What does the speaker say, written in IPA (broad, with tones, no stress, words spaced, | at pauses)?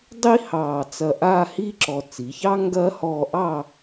dˤi˥ hɑː˧˩ t͡sɐ˧˩ ʔaː˥˧hiː˥ǁɔ˧˩ t͡si˩˧çɑ˥ ŋɡɐː˥ hɔː˧ʔɑː˥˧